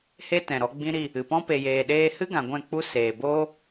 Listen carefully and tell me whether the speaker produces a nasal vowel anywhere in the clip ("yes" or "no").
yes